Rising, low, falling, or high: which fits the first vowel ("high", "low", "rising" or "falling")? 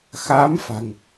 rising